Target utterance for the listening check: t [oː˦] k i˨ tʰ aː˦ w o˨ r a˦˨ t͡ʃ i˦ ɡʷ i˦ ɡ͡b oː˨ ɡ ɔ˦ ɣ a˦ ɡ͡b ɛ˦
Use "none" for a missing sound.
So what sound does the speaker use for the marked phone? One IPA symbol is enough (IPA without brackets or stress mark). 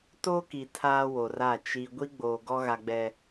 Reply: oː˦